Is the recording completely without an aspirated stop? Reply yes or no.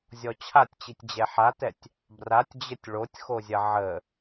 no